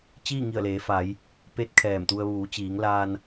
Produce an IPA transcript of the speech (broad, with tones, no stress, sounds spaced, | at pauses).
t͡ɕ iː˥˨ ŋ i˧˩ ə̯ l eː˩˧ f a˩˧ j | p e˧˥ t̚ kʰ ɛː˧˩ m t̪ u˧ ə̯ ʋ uː˩˧ t͡ɕ iː˩˧ ŋ l aː˧ n